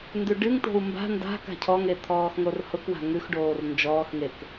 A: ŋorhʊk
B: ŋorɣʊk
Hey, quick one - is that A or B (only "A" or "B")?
A